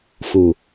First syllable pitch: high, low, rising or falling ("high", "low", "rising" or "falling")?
low